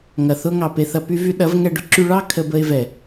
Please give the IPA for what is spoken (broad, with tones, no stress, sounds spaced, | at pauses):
ŋ ɐ˨ θ ʊ˦ ŋ ɑ˨ p e˧ θ ɐ˧ p y˦ v y˧ ɗ ɐ˨˦ v ŋ ɛ˧ ɖ ʊ˧ ǁ y˧ ɭ ɑ˦ kʰ ə˧ b ə˧ ɪ̯ v ɛ˨